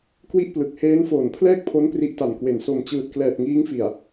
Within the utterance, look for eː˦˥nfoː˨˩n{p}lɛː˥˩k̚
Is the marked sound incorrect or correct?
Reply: incorrect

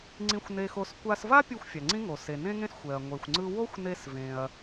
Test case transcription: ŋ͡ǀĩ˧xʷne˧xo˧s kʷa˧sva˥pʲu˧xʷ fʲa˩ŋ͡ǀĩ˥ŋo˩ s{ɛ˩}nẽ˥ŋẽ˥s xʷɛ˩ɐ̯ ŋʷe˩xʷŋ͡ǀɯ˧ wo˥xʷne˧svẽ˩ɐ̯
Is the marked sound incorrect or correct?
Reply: incorrect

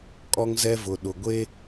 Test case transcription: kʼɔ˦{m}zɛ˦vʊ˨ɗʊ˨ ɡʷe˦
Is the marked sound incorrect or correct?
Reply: incorrect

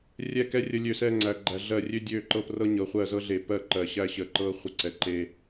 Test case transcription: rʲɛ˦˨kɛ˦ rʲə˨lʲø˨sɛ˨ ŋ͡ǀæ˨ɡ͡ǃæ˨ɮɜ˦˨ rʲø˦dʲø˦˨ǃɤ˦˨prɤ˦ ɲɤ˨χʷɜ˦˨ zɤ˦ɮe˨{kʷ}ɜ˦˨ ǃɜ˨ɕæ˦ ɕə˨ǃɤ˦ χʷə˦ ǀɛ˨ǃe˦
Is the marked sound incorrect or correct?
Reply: incorrect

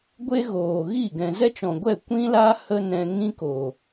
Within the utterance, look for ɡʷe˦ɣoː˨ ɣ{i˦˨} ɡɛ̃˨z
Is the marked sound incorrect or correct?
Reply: correct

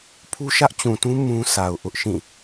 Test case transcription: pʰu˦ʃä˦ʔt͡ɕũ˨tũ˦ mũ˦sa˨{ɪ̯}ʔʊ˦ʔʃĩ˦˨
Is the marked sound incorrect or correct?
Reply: incorrect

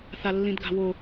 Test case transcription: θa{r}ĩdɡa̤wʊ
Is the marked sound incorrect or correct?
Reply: incorrect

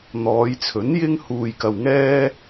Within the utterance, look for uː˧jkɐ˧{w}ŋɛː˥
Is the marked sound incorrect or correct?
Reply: correct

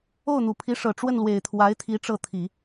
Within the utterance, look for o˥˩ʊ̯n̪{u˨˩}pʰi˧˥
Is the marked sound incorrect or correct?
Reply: correct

